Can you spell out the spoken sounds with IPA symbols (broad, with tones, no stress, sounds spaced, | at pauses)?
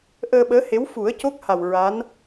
ʔ əː˧ ɓ əː˧˥ h e˧˥ w f u˨˩˦ ə̯ c o˦˥ k̚ h a˨˩ w ɹ a˧˥ n